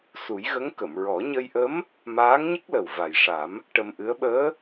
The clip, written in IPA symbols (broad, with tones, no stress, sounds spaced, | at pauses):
s u˨˩˦ j ɣ ə˧˥ ŋ k ə˨˩˨ m ɹ ɔ˨˩˦ ɲ ə˧ j ʔ ə˧˥ m | m aː˧˥ ŋ ɲ ə˦˥ k̚ l ə˨˩ w v a˨˩ j ʂ a˨˩˦ m | ʈ ə˧ m ʔ ɨ˧˥ ə̯ ɓ əː˧˥